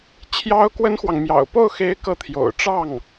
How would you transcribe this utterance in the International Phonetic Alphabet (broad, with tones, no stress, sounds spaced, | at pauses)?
t͡ɕʰ j ɑ˥ ʊ̯ k w ə˥ n x w ɑ˨ ŋ m j ɑ̰˨˩ ʊ̯ p o˥˩ ʊ̯ x e˧˥ ɪ̯ k ɤ˥˩ t̪ʰ j o̰˨˩ ʊ̯ ʈ͡ʂ ɑ˥˩ ŋ